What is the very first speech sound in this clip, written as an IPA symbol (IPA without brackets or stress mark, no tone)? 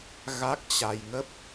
ɣ